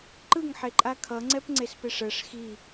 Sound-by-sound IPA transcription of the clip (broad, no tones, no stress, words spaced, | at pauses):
ǃɯŋħeǃʼa kʰʌŋ͡ǀɛpŋ͡ǀespeʂ ɛʂ xi